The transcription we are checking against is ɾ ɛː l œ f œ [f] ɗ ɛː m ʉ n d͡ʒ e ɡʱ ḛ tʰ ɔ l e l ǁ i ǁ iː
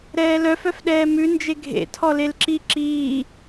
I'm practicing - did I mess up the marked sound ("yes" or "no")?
no